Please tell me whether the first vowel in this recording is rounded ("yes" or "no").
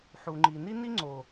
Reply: yes